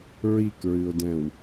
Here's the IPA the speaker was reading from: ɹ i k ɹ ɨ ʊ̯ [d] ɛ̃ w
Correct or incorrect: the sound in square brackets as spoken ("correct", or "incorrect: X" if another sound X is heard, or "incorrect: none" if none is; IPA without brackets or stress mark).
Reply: correct